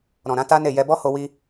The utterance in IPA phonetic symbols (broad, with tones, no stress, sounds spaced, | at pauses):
ɾ ɔ̃˨ ɾ ã˨˦ t a˦ n e˦˨ j ɛ˧ b ɔ˦ h o˧ w i˧